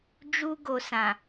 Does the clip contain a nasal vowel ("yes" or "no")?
yes